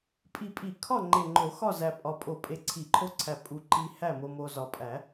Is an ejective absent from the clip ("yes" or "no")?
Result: no